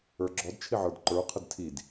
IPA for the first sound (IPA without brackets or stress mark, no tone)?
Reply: ə˞